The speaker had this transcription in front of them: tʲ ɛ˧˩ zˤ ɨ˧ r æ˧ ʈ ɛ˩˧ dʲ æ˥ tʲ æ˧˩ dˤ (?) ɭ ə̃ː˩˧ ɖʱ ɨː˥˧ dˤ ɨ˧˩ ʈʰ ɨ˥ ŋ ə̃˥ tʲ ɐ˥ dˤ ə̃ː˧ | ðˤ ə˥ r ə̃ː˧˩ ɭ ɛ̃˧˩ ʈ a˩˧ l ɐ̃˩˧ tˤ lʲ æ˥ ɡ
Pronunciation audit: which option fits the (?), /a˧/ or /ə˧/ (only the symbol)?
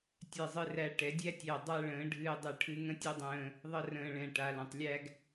a˧